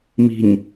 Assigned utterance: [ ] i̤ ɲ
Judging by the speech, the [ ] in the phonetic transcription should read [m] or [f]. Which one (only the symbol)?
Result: m